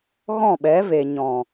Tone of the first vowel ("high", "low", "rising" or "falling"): falling